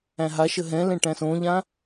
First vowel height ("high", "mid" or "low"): low